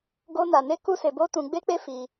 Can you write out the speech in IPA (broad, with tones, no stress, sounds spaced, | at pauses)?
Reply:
ɡ o˦ n a˧ n e˦ k u˦ s e˧ b o˦ t ũ˧ ɡ͡b e˦ k͡p e˦ f i˧